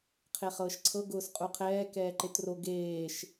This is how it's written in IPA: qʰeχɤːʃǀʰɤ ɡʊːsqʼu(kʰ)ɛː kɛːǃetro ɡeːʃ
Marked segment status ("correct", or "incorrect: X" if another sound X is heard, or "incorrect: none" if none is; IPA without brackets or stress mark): incorrect: qʰ